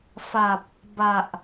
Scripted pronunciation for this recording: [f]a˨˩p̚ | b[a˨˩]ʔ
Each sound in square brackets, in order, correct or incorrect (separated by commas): correct, correct